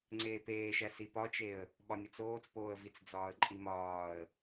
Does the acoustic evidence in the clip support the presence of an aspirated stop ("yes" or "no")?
no